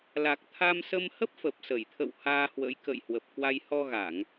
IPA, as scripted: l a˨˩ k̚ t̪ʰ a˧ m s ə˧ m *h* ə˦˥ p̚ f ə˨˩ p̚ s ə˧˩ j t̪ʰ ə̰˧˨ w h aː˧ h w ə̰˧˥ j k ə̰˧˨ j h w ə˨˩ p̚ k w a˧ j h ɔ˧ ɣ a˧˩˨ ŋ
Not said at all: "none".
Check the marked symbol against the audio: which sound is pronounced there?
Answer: h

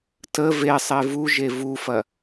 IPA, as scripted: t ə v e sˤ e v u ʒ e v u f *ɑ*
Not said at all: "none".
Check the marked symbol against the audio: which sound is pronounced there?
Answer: ɐ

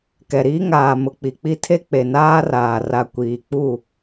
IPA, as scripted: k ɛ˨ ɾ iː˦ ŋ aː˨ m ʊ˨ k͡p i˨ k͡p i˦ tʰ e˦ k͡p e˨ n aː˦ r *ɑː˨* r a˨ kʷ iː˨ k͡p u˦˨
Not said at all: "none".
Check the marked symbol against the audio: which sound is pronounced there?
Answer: aː˨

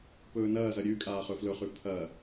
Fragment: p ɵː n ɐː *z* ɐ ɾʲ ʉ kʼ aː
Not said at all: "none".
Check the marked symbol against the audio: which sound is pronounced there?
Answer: z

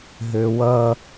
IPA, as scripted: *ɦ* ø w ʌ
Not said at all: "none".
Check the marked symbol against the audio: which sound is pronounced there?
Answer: ɦ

